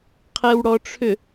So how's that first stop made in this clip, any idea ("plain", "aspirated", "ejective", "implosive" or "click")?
aspirated